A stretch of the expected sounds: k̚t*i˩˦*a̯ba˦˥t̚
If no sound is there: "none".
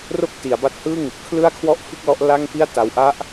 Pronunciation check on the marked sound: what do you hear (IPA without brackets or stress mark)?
i˩˦